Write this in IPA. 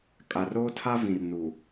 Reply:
kʼ a˨ r oː˦ tʰ a˦ v ĩ˨ r n u˨

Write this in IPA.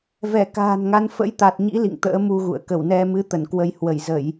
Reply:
v ɛ˧˩ k a̤ː˨˩ n ŋ a˨˦ n f ə̰˧˥ j t̪ a˨˩ t̚ ɲ ḭ˧˥ l ḭ˧˨ ŋ t̪ ə̰ː˧˥ m u˧ ɣ ṵ˧˨ ə̯ k ə˧˩ w n ɛ˧ m ɨ˨˦ t̪ ə˧˩ n k w ə˧ j h w ə˧˩ j z ə˧˩˨ j

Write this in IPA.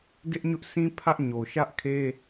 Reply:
d ɪ˦ ʔ ɲ ʊ˦ ʔ s ĩ˦ pʰ ä˦ ʔ ɲ o˨ ʃ ä˦ ʔ kʰ e˦

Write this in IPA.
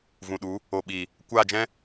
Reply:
v ũ˨ ɗ u˨˦ | o˨ ɓ iː˨ | kʷ a˦˨ d͡ʒ ɛ̃˦

